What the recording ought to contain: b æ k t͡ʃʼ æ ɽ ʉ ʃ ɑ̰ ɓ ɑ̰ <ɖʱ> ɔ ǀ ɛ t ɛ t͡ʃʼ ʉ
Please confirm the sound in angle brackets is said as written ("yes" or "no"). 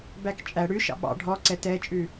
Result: yes